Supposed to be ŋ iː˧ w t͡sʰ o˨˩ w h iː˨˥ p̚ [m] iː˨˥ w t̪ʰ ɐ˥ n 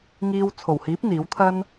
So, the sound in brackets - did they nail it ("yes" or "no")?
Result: no